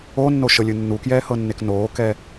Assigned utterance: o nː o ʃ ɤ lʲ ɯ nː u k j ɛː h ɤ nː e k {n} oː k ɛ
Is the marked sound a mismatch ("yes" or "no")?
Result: no